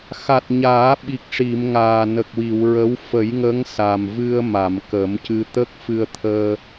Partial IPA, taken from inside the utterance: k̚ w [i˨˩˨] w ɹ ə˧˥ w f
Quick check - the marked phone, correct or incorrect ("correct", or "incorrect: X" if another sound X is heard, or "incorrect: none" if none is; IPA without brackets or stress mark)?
correct